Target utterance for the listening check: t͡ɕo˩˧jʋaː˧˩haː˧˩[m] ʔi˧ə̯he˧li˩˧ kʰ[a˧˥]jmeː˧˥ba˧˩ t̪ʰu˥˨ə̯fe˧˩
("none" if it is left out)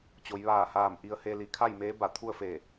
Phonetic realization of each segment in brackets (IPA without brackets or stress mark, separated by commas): m, a˥˨